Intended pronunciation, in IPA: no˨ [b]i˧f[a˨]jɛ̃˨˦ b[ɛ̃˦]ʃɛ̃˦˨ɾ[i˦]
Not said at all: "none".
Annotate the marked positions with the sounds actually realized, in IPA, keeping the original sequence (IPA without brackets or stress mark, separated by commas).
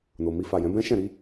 m, a˨, ɛ̃˦, i˨˦